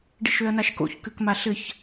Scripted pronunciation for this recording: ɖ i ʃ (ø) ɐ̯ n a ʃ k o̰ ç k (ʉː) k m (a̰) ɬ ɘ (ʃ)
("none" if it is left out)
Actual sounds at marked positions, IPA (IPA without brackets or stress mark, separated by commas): ø, ʉ, a, ç